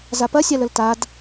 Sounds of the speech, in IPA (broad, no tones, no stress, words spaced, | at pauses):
zapɐsʲaləl tad